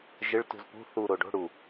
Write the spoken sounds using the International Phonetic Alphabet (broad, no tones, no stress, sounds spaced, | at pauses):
ʒ ɪ ɭ t ṳ z p ṳ θ u ɾ o ɖ o̤ ɽ u